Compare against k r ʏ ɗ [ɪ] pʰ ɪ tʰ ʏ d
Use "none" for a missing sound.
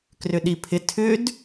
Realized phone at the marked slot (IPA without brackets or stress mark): i